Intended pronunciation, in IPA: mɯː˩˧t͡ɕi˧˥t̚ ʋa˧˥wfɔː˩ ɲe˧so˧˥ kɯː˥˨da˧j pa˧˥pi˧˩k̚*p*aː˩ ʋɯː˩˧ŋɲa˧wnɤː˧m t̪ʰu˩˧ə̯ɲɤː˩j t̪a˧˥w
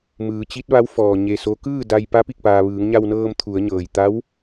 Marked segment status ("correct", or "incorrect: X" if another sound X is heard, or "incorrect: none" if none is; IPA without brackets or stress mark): correct